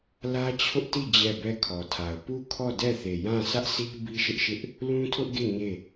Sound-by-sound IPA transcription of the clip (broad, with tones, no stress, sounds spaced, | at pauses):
l ä˦ t͡ɕʰ ʊ˦ ʔ t i˦˨ d͡ʑ ɛ˦˨ b ɛ˦˨ kʰ ɔ˨ tʰ a˨ ʊ̯ p u˦˨ kʰ ɔ˦˨ d ɛ˦˨ θ e˨ j ã˦˨ sʰ ä˦ ʔ sʰ i˦ b i˦ ʃ ɪ˦ ʔ ʃ ɪ˦ ʔ | l ũ˦ tʰ ʊ˦ ʔ ɡ e˦˨ ɲ e˦˨